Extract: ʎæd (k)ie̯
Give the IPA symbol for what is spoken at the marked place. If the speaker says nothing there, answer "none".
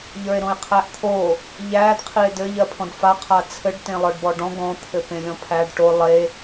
qʰ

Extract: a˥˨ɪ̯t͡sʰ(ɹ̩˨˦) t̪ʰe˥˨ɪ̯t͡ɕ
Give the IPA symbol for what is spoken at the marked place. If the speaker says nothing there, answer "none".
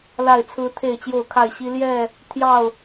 ɹ̩˦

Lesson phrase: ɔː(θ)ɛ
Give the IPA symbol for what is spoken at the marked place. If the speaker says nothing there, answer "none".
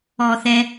θ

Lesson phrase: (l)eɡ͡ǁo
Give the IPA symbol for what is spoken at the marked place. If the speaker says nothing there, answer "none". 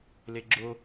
l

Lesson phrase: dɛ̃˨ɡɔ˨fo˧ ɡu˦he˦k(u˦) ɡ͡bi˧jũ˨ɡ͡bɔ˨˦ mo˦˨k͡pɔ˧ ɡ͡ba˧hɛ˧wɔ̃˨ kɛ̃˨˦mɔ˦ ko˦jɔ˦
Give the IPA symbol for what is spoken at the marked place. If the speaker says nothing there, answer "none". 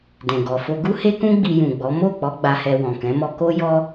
ũ˦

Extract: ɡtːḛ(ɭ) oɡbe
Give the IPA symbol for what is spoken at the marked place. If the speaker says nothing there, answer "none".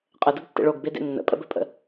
ɭ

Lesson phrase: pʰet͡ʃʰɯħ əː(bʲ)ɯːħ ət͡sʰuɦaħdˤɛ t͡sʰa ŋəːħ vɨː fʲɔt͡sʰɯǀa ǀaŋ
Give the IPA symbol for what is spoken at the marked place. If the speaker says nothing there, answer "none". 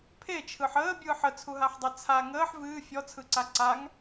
bʲ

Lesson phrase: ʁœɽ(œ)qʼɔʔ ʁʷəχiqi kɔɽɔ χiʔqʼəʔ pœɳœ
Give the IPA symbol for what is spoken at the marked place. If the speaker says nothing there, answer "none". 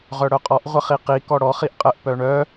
œ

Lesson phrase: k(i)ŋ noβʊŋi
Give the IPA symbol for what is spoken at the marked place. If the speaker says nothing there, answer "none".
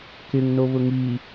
ɪ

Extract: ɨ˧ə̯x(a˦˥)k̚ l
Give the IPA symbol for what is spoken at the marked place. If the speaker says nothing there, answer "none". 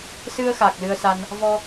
a˨˩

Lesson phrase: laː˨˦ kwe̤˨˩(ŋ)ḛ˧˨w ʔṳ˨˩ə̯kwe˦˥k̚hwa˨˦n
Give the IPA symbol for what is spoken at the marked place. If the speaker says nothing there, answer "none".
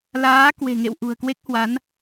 ŋ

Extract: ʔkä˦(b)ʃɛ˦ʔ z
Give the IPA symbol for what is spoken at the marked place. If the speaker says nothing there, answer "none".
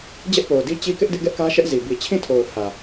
none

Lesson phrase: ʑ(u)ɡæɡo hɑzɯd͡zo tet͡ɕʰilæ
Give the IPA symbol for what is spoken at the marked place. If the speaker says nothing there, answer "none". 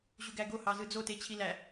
u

